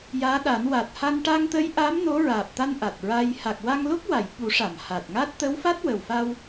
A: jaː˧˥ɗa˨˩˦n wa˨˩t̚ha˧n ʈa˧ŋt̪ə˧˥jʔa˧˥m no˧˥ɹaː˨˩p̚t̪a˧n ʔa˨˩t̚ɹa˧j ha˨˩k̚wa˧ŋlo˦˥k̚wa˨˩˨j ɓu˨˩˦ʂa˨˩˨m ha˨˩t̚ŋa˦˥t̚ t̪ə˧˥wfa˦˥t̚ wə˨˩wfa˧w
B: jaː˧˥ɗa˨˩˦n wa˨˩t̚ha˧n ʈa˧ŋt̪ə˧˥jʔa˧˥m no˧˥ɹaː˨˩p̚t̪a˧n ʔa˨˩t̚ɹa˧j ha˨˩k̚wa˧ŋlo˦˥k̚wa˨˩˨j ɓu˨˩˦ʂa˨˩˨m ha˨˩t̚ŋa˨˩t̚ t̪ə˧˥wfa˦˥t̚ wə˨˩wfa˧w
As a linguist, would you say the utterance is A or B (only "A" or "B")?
A